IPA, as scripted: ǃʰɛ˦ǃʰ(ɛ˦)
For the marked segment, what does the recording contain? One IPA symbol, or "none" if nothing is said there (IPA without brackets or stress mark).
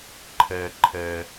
ɛ˦